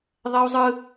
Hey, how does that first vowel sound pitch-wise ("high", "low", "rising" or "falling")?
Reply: high